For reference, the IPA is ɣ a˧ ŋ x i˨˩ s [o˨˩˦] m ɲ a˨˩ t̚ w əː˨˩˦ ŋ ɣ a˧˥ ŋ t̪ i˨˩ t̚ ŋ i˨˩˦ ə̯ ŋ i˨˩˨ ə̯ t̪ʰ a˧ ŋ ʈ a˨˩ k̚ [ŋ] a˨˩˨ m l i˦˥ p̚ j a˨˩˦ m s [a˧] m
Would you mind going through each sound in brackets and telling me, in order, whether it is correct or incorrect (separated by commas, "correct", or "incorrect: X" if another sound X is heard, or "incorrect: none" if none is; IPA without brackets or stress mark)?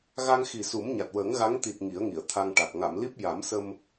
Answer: incorrect: u˨˩˦, correct, incorrect: ə˧